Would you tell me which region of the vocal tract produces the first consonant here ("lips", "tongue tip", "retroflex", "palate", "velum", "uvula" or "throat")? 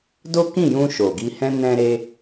tongue tip